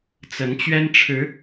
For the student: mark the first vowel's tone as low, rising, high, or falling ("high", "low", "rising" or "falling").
rising